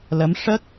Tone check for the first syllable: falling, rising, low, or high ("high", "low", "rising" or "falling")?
rising